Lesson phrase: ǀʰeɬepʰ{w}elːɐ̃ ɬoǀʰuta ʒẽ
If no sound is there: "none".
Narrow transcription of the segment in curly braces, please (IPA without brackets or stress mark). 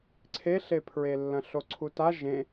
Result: ɹ